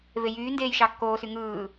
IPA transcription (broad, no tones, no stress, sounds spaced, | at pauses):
v e j yː n d eː j ʃ ɑ kː oː s y ŋ ɯː